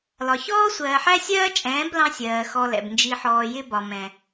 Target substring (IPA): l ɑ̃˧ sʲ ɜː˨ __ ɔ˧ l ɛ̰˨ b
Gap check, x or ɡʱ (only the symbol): x